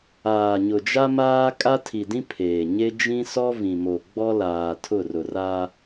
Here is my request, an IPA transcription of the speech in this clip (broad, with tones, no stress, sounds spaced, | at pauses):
aː˨ ɲ ʊ˨ d͡ʒ a˦ m aː˦ kʼ a˦ tʰ i˨ d ĩ˦ pʰ eː˨ ɲ e˦ d͡ʒ ĩ˦ s ɔ˦ v ĩ˨ m o˨ ɡ͡b ɔ˦ l aː˨ tʰ ʊ˦˨ r ʊ˨ r a˦